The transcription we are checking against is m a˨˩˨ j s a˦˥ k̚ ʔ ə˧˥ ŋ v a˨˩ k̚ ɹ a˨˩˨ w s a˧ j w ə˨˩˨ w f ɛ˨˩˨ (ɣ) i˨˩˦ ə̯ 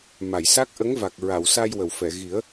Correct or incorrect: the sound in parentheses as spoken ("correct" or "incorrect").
correct